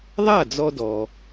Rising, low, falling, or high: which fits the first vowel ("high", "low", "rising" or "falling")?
falling